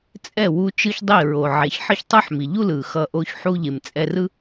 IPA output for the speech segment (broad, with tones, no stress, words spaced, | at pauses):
t͡sʼɛ˦˨wu˧ t͡ʃɯ˦çdˤi˦˨ ɹo˨ʕe˨ç ħʌ˦çtˤɯ˦ħmi˨ ʎu˦lɯ˨xʌ˧ʔo˧ç ħu˧ʎe˨m t͡sʼɛ˧rɯ˦